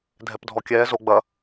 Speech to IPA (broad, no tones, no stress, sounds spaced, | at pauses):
dʱ ɛ p dʱ ɔ kʲ ɛː z o ɡ͡b ɐ